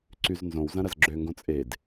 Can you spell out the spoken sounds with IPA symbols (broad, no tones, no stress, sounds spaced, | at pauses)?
ǀ y z n z õ w z ɐ̃ ɾ ɐ z ɡ͡ǁ ø ŋ ɡ õ t͡sʼ e d